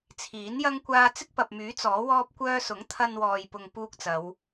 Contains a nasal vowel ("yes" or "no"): no